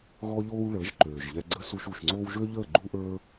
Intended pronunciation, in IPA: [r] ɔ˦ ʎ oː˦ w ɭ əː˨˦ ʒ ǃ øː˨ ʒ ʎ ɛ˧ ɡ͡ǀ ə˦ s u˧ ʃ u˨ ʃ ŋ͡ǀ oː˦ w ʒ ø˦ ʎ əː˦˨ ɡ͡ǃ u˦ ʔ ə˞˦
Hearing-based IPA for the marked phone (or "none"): ɣ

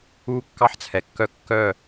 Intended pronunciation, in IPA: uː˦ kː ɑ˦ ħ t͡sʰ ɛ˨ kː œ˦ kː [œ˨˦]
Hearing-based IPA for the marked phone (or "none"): œ˦˨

